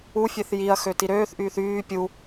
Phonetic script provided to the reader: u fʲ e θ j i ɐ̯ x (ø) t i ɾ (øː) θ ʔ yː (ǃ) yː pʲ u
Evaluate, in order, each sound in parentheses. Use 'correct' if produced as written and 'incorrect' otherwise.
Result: correct, correct, incorrect

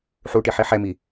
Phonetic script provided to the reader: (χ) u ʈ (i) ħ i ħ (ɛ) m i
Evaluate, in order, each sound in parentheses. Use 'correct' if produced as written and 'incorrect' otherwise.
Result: incorrect, correct, correct

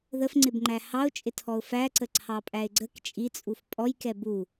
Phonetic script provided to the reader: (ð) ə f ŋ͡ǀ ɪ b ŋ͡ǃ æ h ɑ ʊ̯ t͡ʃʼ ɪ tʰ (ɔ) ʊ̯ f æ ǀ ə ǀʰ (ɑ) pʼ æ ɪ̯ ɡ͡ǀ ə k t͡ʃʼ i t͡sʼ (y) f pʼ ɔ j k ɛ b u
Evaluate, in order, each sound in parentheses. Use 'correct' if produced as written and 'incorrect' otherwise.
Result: correct, correct, correct, incorrect

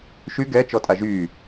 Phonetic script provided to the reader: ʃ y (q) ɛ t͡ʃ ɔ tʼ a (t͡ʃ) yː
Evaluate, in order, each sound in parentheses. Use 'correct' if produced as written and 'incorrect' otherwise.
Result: incorrect, incorrect

